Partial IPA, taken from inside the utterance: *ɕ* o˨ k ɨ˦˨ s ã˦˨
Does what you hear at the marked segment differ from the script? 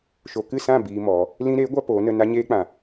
yes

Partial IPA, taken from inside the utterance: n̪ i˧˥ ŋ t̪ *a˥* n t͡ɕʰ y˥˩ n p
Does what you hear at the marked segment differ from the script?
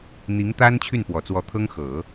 no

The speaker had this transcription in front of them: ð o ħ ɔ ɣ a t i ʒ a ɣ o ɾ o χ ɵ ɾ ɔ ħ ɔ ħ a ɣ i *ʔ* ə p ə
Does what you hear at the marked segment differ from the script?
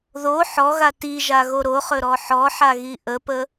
no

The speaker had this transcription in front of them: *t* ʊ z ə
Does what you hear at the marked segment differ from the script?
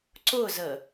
yes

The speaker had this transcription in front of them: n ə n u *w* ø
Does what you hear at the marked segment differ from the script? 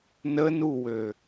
no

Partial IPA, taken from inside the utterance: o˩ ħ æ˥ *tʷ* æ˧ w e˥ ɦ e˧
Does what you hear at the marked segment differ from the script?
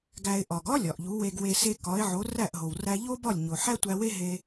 no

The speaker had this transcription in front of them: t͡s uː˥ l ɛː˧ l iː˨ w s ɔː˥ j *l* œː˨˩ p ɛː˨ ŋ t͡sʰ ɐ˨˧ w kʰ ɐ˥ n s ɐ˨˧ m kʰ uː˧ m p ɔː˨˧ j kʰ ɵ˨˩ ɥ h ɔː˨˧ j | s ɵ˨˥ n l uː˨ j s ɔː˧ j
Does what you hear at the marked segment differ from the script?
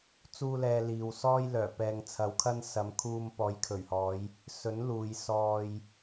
no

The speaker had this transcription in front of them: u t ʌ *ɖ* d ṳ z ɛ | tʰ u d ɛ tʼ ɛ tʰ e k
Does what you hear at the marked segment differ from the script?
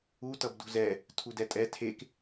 yes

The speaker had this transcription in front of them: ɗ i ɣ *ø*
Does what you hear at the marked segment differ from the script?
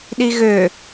no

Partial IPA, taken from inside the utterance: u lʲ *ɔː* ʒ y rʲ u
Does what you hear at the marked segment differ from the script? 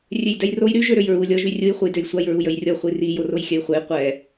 yes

